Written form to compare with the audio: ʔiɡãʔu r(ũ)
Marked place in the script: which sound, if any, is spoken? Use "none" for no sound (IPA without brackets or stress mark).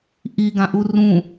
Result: ũ